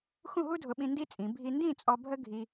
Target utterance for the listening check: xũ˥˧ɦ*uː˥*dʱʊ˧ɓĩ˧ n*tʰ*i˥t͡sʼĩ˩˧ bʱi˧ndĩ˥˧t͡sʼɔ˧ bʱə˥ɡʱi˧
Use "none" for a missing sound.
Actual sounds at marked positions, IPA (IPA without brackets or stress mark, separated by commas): u˥, d